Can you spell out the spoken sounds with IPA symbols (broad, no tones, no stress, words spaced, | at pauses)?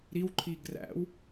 ɾiw ǃʰiɡræ̰w